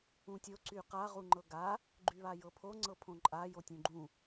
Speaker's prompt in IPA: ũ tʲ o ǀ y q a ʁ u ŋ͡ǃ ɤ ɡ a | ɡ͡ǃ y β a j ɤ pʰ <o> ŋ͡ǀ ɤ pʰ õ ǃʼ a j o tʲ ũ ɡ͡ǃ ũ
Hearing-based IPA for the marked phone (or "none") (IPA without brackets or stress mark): o